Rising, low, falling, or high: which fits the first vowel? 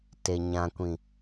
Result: low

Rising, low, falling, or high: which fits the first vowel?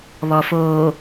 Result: low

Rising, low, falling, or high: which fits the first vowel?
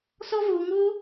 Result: high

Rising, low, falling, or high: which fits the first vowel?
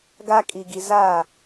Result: high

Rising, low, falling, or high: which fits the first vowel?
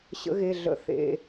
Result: rising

